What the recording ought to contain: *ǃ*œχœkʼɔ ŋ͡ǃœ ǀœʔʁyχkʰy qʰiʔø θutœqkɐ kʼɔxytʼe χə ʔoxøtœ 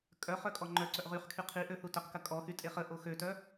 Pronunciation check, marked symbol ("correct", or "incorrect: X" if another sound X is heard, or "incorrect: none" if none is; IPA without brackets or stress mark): incorrect: kʼ